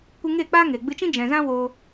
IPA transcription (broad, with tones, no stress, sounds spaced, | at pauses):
kʷ ɨ˧ ŋ eː˦˨ k͡p aː˦ ŋ eː˨ ɡ͡b ɨ˧ t͡ʃ ĩ˦ d͡ʒ ɛ̃˨ z ã˦ w o˧